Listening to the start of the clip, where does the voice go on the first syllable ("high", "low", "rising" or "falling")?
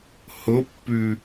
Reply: rising